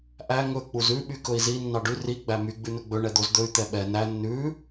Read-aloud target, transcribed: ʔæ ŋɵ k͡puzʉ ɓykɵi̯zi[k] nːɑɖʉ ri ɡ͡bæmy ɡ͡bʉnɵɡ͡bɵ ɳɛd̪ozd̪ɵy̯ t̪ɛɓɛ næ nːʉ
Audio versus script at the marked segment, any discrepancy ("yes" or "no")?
yes